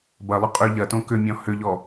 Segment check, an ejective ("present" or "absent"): present